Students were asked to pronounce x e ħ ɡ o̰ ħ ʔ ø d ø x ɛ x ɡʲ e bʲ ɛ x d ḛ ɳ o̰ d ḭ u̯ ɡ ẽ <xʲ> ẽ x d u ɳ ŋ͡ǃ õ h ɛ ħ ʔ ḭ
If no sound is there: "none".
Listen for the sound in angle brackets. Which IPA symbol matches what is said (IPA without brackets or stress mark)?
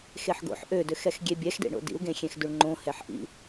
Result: xʲ